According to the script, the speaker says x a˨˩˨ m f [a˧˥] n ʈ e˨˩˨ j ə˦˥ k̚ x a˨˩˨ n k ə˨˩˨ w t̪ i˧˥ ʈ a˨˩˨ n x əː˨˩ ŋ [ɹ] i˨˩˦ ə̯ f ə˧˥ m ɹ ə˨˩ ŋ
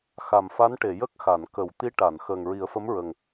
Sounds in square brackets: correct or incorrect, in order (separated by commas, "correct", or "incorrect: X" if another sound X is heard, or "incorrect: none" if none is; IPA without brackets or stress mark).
correct, correct